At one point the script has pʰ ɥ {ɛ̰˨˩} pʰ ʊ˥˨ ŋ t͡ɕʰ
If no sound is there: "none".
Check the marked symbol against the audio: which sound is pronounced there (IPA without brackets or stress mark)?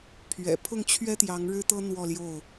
ɛ̰˨˩